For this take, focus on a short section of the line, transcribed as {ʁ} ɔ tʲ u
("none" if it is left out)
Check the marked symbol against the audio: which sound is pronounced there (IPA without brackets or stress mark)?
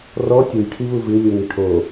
r